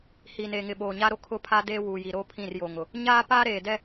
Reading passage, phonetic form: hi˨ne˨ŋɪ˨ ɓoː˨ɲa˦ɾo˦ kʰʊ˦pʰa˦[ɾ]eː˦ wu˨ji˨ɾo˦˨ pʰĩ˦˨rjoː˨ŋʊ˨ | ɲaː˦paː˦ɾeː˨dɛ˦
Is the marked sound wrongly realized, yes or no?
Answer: yes